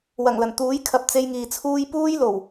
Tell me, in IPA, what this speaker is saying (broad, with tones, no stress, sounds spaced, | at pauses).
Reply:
w ɐ˨˩ ŋ l ɐ˨˩ n t̪ uː˨˥ j kʰ ɐ˨ p̚ t͡s e˧ j ŋ iː˨ t͡sʰ uː˥ j p uː˥ j l o˨˩ w